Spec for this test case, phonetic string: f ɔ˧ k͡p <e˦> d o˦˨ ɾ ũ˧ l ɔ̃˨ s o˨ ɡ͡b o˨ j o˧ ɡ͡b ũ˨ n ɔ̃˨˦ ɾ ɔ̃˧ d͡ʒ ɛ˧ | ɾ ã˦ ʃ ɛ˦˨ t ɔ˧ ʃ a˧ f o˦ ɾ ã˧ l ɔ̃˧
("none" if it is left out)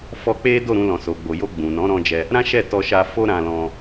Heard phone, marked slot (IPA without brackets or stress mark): e˦